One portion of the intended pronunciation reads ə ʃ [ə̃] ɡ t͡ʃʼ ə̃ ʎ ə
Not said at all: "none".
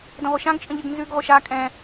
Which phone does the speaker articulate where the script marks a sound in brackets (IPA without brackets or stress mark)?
ã